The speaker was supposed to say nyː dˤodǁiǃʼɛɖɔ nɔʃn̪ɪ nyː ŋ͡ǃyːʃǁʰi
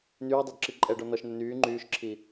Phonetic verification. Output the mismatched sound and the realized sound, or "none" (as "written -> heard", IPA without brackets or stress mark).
none